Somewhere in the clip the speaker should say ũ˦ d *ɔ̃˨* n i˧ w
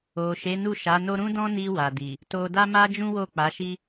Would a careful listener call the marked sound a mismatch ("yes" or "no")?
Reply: yes